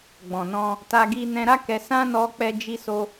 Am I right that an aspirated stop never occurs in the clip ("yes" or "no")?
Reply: yes